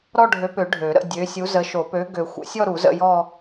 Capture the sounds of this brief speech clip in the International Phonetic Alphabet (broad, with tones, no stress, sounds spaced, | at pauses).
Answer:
ɾ ɔ˥˧ ɖʱ ø˨˥ p ø˨˩˦ ɖʱ ø˨˩˦ ɾ ə̰˥˧ dʲ ø˨˥ sʲ u˨˥ z ə˨˥ ʃ o˨˩˦ p ø˨˥ ɡ ø˨˩˦ xʷ ə̰˨˩˦ sʲ ɔ˥˧ ɾ u˨˩˦ z ə̰˥˧ j ɔ˥˧